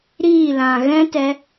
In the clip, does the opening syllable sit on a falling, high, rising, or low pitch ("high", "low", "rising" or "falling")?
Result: falling